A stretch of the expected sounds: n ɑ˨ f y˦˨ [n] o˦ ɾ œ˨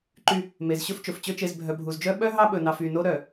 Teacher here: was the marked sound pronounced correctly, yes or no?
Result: yes